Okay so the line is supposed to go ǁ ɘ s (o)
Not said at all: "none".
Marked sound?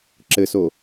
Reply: o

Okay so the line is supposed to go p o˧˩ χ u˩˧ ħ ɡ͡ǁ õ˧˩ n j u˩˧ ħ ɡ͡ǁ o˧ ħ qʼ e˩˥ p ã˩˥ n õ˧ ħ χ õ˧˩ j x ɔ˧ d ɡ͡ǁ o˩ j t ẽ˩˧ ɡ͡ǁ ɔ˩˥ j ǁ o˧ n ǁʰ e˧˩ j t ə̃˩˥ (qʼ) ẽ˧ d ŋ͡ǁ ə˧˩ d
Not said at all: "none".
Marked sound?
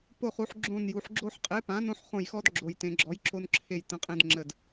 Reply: qʼ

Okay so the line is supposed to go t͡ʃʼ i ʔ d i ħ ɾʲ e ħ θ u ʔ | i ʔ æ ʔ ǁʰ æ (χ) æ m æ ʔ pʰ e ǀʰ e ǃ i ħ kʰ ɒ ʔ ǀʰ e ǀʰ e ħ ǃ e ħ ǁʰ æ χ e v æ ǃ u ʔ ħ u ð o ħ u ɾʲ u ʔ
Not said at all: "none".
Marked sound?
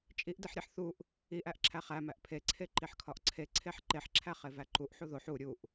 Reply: χ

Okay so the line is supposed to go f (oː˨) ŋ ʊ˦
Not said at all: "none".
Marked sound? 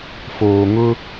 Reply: oː˨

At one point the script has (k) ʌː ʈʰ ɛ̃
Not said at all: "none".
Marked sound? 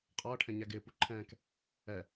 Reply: qʼ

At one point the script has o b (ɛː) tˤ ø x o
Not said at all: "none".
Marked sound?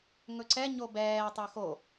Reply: ɛː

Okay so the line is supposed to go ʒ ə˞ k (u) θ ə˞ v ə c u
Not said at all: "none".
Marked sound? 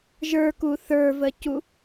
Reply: u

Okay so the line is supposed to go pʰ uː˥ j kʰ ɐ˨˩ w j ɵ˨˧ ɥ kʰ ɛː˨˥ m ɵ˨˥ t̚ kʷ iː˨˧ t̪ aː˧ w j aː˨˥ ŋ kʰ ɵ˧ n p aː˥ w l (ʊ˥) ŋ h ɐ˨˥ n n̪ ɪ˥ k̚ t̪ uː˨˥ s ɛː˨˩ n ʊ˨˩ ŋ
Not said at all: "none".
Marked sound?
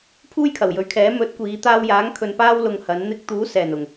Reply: ʊ˧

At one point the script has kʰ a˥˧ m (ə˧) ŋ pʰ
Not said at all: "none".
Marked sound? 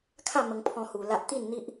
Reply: ə˧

